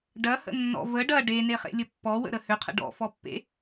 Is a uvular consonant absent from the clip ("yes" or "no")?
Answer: no